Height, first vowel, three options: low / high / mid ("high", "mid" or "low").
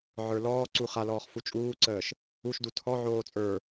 mid